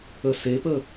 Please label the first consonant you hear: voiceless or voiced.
voiceless